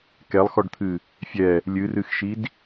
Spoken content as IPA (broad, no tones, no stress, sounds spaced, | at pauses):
k ɛ lˠ x ɔ ɖ t̪ʰ ɨ | fʲ ɛ | lʲ ɨ r ɨ x ʃ i d